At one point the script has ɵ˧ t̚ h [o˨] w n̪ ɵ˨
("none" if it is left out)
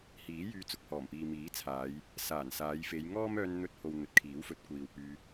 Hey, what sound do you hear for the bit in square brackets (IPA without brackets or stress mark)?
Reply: o˨